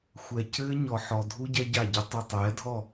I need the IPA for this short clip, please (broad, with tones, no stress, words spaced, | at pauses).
xʷɛ˨cɘː˦ ɲɔ˨ħɔ˨dʱu˦ ɟɛ˦ɟa˦˨ɟɘ˦ tˤu˨tˤɛː˨˦dʱɔ˦˨